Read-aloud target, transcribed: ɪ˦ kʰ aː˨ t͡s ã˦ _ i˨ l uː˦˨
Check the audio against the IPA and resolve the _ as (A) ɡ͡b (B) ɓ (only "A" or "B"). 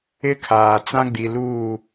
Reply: A